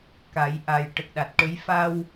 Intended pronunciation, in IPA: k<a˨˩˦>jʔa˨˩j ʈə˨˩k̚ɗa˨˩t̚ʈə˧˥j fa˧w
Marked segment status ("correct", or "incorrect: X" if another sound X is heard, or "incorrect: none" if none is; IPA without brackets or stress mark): correct